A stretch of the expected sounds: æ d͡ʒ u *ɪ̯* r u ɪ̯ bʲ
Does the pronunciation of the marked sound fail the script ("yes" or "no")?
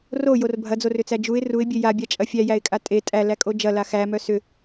no